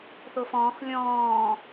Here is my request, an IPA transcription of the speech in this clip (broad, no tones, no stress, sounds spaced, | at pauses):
θ o f ɔ̃ː x lʲ ɔ̃ː